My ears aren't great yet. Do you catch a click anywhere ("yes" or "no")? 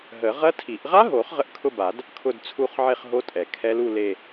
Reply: no